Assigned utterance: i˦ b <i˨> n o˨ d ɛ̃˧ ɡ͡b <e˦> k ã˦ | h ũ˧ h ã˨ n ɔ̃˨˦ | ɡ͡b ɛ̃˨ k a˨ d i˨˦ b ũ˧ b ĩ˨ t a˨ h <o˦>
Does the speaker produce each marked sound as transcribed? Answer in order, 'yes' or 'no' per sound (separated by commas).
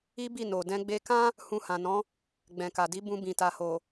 no, no, no